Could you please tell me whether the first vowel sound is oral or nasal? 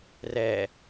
oral